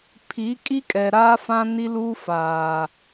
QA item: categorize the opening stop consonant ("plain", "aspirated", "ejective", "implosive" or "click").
aspirated